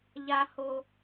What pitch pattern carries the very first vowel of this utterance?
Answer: high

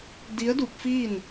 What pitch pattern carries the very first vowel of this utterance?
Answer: rising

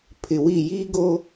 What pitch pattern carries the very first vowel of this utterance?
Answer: low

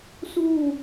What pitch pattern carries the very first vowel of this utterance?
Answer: falling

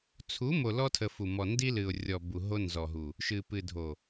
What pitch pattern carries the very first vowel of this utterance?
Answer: rising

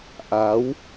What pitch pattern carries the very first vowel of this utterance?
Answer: rising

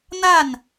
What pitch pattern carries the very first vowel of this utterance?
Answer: falling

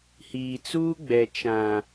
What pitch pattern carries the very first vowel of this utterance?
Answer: low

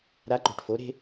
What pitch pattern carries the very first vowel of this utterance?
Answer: rising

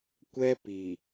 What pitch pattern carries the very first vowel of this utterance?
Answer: high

